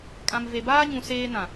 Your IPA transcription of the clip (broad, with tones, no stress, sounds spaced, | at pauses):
kʼ ã˨ m v e˨ b aː˦ ɲ ũ˨ s eː˦ n ã˨